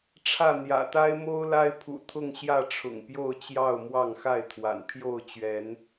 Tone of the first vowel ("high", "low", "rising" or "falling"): falling